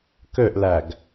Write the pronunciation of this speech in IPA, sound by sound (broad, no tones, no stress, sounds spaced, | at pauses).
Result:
k ø ʔ l æ ɡ